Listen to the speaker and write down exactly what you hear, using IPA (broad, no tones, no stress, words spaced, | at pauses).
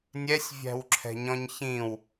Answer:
nʲɛsʲvʲæ̤wǁʰɛ̤ɲɔ̃ɲ çĩw